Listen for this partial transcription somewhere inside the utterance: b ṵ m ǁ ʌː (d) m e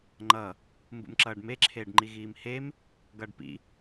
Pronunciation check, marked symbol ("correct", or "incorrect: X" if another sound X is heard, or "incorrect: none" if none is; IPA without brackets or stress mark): incorrect: ɖ